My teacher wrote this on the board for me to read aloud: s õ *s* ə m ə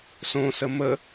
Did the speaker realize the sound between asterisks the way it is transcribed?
yes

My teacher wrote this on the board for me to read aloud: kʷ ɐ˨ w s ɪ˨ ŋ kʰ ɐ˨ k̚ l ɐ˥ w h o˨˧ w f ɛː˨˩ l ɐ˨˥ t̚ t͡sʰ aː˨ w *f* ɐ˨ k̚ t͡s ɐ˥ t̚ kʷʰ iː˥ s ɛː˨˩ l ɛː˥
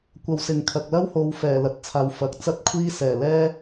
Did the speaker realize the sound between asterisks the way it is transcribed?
yes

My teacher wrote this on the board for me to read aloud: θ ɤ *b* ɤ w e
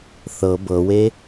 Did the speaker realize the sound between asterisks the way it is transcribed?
yes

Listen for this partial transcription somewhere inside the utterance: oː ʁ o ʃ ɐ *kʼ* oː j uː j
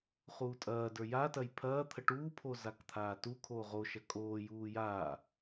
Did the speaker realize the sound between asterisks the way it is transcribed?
yes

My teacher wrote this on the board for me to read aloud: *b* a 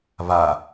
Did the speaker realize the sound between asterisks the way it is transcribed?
no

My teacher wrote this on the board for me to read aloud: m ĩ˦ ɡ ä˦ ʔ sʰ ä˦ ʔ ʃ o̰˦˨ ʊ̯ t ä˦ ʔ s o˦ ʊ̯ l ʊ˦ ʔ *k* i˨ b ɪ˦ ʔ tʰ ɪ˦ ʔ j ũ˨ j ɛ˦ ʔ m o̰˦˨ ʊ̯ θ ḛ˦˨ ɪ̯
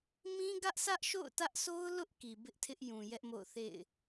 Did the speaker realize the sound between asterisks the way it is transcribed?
yes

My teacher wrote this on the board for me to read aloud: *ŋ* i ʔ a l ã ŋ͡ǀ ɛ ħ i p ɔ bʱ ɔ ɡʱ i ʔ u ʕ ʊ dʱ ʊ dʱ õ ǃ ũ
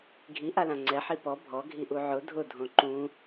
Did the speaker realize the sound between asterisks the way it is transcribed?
no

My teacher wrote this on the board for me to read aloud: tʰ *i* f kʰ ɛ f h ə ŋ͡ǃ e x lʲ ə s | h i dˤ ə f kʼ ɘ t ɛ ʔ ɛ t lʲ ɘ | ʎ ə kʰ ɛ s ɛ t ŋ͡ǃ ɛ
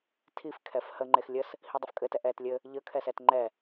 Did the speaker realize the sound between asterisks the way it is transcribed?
yes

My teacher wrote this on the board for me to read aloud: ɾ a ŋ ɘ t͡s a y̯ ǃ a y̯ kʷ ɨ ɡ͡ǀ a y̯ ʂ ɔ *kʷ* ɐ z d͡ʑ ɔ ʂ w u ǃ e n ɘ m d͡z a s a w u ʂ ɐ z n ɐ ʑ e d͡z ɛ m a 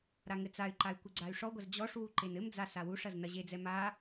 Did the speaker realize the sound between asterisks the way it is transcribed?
no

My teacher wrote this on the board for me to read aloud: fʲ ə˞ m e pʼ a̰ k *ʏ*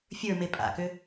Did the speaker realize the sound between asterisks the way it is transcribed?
yes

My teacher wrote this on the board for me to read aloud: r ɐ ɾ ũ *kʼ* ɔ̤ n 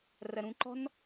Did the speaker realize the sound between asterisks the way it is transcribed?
no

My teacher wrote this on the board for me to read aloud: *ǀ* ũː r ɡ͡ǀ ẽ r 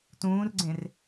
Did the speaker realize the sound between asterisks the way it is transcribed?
no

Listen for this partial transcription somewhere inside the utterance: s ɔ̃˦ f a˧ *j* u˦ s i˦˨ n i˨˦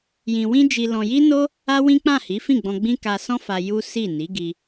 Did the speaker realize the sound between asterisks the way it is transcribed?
yes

